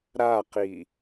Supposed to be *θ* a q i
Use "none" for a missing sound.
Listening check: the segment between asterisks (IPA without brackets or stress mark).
ɾ